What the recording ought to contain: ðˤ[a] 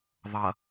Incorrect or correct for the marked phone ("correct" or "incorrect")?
incorrect